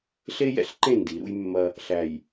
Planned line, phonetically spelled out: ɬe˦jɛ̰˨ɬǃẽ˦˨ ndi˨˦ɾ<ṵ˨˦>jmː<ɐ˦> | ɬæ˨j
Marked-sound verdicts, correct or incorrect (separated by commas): incorrect, correct